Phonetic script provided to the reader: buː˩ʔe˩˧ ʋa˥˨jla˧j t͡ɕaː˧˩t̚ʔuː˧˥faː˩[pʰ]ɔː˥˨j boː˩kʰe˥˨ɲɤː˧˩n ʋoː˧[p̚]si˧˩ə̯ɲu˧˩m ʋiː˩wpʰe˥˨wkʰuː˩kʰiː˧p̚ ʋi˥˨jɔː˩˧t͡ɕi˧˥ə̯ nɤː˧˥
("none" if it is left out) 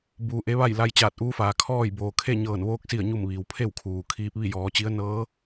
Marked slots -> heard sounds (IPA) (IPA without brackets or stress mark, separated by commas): kʰ, k̚